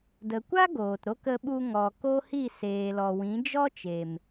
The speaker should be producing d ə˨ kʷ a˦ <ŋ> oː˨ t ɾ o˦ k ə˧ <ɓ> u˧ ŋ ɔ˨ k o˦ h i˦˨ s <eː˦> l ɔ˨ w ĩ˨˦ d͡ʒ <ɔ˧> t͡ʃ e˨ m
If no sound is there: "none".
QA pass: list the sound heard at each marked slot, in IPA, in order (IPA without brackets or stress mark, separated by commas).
ɡ, ɓ, eː˨, ɔ˦